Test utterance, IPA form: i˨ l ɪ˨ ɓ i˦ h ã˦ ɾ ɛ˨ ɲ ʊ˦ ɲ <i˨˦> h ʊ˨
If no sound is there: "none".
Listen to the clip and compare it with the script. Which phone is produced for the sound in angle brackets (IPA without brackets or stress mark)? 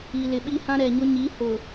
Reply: i˨˦